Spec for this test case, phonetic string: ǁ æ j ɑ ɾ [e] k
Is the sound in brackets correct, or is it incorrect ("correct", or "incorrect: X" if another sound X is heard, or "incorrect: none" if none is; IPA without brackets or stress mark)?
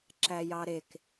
correct